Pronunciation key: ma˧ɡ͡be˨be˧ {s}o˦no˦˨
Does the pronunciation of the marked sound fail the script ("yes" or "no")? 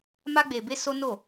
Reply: no